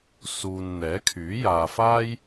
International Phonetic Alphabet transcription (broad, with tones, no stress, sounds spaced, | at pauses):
s uː˨ n n̪ ɛː˨˥ kʰ yː˨˥ j aː˧ f aː˥ j